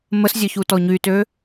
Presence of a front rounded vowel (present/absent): present